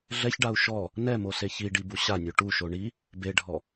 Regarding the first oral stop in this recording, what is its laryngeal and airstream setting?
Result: plain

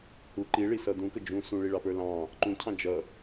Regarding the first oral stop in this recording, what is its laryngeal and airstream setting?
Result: click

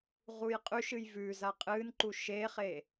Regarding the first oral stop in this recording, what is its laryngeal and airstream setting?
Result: ejective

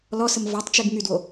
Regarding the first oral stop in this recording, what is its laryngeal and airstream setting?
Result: plain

